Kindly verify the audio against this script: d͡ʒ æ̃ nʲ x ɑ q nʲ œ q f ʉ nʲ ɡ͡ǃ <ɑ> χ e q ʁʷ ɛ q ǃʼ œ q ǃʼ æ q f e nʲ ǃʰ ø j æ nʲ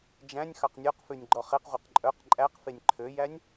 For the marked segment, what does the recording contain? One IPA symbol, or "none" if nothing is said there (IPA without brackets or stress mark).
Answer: ɔ